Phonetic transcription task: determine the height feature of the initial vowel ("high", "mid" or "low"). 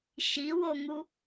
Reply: high